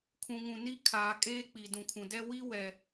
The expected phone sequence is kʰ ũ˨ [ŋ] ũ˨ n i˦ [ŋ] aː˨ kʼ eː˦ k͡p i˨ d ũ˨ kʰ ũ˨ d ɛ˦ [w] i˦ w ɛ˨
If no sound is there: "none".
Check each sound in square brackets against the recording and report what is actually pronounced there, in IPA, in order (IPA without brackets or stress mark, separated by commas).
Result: ŋ, kʰ, w